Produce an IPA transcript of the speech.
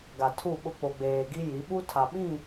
ɡ a˨ tʰ u˦˨ ɓ ʊ˦ k͡p o˨ ɡ͡b eː˨ ɡ i˦ j i˨˦ ɓ u˦ tʰ a˨ ɓ ĩ˦˨

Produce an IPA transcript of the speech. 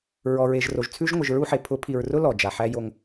ɹ ɔ˨ ɹ e˨ ʒ r o˨ ʒ t͡sʰ ʉ˦ ʒ ŋʷ ɨ˨ ʒ ɹ u˦ ħ e˨ pʰ ʊ˨˦ pʰ i˨ ɹ r ʊ˦ l ɔ˨ d͡ʒ a˨ ħ æ˦ j o˦ ŋ

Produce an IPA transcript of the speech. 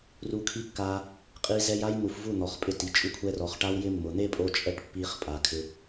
r u˧ kʰ i˦ kː a˧ | qʼ i˧ z ɛ˧ j a˦ j n̪ u˨ f v u˦˨ n̪ ɔ˨ χ pʼ ɪ˧ t i˨ t͡ʃʼ u˧ kʷʰ ɛ˧ r ɔ˨ χ ʈ a˦ w j ɪ˦ mː ʊ˨ n̪ e˦ pʼ o˧ t͡ʃʼ ɛ˦˨ ʈ pː i˧ χ pʼ a˨ kʰ ɪ˧

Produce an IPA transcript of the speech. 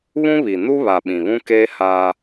β ũ˦ β i˨ n u˦ β a˨ ɓ ĩ˨ β ũ˦ k eː˦ h aː˦

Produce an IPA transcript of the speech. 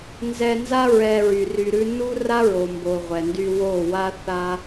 n z ɛ˧ n z a˦ ɹ ɛ˧ ɹ y˨ r y˧ ɾ ʉ˦ n u˦ r a˦ ɹ o˨ m b o˨ ʁʷ ɛ˨ n d y˧ w o˦˨ w a˦ θ a˦

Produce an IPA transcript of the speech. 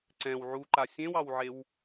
ǀ ɛ̃ w ʕ u ǃ a sʲ ẽ w ɑ w ʕ e w

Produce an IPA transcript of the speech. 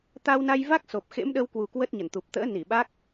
t̪ a˧ w n a˧ j v a˦˥ k̚ s o˨˩ p̚ x ḛ˧˥ m ɗ ə˧ w k w u˨˩ k w ə˦˥ t̚ ɲ ə˧˩ n t̪ u˨˩ p̚ t̪ ə̰ː˧˥ n i˧˩ ɓ a˦˥ k̚

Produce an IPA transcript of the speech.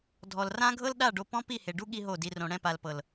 dʱ ɔ˨ l r ã˦ ɡʱ ɤ˦ l ɗ a˦˨ ɖ o˧ p ɔ̃˦ p i˦˨ h e˨ ɖ u˦ ɠ i˦ ɦ o˦˨ d i˧ r õ˧ ɽ ɛ̃˦˨ p a˨ l p ɤ˨ l

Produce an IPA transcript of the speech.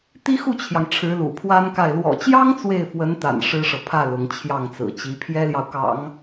t̪ i˥ x u˥˩ t͡ɕʰ j ɑ˩ ŋ ʈ͡ʂʰ ɻ̩˧˥ l ṵ˨˩ pʰ w a˥ n k a˥˩ ɪ̯ l w ɔ̰˨˩ t͡ɕ j ɑ˥ ŋ t͡s w e˥˩ ɪ̯ f w ə˧˥ n t̪ a̰˨˩ n ʂ ɻ̩˥ ʂ ɤ˨ pʰ ä˥˩ l ʊ˧˥ ŋ t͡ɕʰ j ɑ˥˩ ŋ t͡s ɹ̩˨˩ t͡ɕ i˧˥ pʰ j ɛ˥ l j ɑ˨ ʊ̯ k ɑ̰˨˩˦ ŋ

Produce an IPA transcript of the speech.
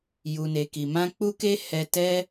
j u˨ n e˨ k i˨ m ã˧ k͡p u˦ k e˦ h ɛ˧ t ɛ˦

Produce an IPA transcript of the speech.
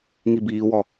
ŋ i b iː w ɔ

